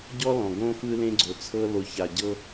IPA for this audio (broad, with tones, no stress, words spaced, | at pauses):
ɟɔ˦lɔ̃˨ ɡõ˦ fɯ˦lẽ˦ɡ͡ǀo˨t͡sʰɤ˦ lo˨ça˨ɟɤ˦